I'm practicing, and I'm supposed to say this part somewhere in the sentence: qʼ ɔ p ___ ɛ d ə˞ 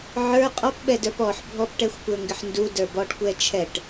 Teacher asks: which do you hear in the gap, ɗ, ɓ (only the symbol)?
ɓ